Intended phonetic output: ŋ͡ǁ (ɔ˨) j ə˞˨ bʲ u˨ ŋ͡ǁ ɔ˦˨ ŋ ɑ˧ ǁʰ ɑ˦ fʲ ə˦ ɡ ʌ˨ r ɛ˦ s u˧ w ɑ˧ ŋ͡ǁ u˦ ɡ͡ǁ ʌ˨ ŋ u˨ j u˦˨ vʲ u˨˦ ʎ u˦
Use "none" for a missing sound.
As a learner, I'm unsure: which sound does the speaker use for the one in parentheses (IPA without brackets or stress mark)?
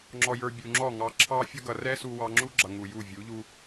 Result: ɔ˨